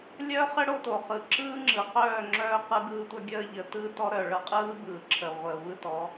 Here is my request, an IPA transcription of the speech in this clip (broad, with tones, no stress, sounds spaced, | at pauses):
lʲ œ˦ χ ə˦ ɽ o˦ t o˨ χ ɯ˨ ǁ ɯː˦ ŋ͡ǁ ɯ˨ q œː˦˨ ŋ͡ǁ œː˦ q ɯ˦ ɡ ɯː˦ tʷ œ˦ ɡʲ əː˦ ʎ ə˨ t ɯː˦ t ɔ˦ ɾ œː˨ ɭ ɤ˨˦ qʼ ɯː˦ b ɯː˨ ǁʰ ə˨ ʁʷ əː˨ v ɯ˦ t ɔ˨˦